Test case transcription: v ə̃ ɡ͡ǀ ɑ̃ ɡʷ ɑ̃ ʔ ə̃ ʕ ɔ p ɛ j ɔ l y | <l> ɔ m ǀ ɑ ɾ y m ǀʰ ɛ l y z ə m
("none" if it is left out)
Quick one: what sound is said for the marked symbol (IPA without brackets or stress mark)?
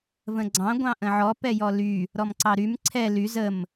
ɾ